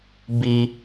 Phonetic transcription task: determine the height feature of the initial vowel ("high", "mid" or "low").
high